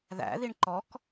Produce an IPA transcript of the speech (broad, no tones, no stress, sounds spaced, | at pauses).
ð æ̰ ð i ɳ ǃ ɔ k